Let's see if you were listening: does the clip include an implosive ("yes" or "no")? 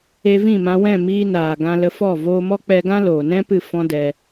no